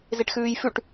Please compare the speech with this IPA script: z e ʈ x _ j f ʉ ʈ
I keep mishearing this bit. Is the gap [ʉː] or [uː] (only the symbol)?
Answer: ʉː